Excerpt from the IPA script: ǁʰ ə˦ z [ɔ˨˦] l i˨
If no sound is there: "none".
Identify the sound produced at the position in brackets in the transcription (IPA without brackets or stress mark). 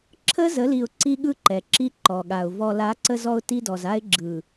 ə˨˦